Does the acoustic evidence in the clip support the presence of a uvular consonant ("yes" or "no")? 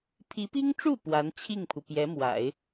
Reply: no